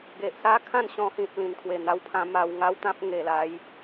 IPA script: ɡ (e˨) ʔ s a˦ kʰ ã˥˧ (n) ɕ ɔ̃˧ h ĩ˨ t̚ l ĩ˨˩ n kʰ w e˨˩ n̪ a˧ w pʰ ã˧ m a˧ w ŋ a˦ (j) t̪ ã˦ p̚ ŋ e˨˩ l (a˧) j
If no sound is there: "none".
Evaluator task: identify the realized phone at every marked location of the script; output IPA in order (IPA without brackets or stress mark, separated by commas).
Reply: e˨, n, w, a˨˦